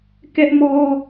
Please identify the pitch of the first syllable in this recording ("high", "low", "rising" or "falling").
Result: high